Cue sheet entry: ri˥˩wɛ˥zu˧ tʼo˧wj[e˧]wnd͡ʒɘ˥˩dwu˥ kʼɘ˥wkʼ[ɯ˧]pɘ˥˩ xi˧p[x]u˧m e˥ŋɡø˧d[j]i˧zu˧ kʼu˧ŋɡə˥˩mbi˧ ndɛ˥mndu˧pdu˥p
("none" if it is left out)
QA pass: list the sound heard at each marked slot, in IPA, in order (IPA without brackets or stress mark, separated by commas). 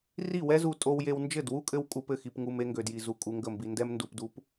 e˧, u˧, ŋ, j